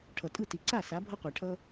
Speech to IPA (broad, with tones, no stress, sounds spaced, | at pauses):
ʈʰ ʌ˨ tʼ ɯ˥˩ t i˨ ǀ a˥˩ s a˨˥ bʱ ʌ˦ qʷ ɛ˨ ʈʰ ʌ˦